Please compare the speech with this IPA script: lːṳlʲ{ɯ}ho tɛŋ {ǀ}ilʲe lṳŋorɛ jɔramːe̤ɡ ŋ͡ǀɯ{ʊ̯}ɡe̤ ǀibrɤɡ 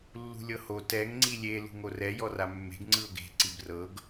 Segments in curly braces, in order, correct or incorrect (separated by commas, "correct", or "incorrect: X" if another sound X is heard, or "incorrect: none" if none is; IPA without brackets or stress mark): incorrect: ɤ, incorrect: ŋ͡ǀ, correct